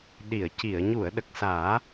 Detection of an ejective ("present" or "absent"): absent